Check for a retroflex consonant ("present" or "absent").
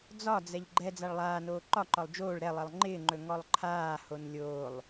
present